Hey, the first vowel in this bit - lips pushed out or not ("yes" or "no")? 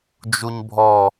yes